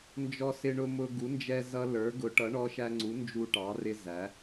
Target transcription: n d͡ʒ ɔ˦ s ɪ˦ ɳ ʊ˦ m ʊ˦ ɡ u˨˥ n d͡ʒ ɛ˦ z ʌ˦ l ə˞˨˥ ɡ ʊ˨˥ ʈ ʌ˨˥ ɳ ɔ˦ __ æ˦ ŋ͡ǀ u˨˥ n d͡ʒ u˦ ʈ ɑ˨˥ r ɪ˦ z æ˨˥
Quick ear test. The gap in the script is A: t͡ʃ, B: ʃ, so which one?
B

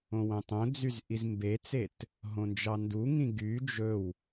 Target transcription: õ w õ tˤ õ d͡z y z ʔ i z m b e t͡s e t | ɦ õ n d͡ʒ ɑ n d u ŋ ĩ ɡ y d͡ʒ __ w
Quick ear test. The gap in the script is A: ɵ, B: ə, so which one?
A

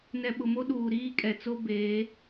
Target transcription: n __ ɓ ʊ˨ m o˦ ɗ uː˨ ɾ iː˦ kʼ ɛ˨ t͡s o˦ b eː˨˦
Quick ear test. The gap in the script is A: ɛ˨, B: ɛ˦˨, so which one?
A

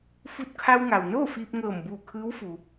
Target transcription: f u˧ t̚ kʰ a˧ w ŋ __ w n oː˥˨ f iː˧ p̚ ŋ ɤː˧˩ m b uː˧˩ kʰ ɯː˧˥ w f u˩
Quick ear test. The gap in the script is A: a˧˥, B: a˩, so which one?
B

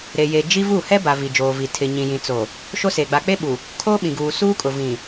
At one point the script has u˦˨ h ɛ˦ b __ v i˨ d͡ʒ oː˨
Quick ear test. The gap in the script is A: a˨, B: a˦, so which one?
A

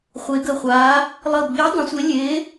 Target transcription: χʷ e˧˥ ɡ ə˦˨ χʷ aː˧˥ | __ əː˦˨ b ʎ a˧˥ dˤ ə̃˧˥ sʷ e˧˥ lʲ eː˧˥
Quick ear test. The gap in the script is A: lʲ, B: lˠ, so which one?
B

